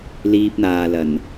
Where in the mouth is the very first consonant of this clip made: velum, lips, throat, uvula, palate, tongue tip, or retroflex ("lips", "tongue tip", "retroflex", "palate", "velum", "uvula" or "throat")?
tongue tip